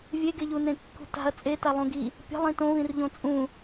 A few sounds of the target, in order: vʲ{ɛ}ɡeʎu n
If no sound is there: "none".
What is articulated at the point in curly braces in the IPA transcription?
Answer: e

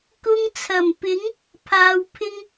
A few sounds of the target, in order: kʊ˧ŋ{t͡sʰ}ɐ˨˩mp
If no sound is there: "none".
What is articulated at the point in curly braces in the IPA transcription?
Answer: t͡sʰ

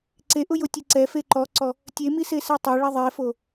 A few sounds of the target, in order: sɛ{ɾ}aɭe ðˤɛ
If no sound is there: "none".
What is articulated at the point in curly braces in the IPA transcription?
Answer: tˤ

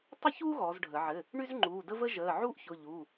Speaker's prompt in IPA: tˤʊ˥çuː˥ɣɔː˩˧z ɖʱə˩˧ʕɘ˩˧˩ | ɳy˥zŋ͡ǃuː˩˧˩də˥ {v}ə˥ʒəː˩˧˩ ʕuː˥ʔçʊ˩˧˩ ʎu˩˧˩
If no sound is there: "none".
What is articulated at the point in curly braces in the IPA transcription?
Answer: v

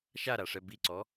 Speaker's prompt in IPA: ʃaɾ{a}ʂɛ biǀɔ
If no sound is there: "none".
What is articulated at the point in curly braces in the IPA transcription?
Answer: a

